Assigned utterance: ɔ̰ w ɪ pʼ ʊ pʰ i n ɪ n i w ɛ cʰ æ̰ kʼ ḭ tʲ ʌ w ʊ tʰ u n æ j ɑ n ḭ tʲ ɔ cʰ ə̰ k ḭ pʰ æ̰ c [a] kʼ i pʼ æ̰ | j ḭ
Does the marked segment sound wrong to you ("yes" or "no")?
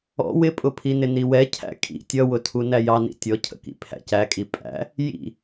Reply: yes